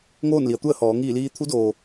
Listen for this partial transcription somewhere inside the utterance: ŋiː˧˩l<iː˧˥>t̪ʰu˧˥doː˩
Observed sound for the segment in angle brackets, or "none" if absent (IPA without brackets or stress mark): iː˧